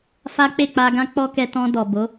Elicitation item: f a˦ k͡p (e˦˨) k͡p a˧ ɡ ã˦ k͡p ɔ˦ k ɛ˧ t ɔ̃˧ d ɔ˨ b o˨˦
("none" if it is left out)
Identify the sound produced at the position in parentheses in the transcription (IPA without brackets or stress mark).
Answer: e˦˨